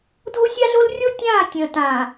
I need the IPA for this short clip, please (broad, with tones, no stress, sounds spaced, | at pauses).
dʱ o˦ sʲ a˦ ɮ o˦ l rʲ o˦ tʲ ãː˦˨ tʲ ə̃ː˨ t ãː˨